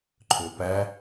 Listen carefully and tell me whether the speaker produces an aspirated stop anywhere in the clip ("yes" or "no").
yes